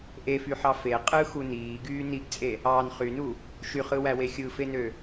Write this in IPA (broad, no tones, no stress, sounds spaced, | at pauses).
ʔ e f y ħ ɑ f e qʼ ɯ x u n iː ɡ yː n i ɡ t͡sʼ e | ɑː n χ y n u | ʃ y χ ɯ w æ w e xʲ ɯ f e n ø